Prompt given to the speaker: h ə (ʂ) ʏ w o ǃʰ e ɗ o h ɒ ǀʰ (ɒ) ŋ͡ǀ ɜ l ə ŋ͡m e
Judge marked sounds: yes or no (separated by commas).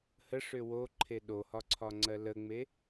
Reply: yes, yes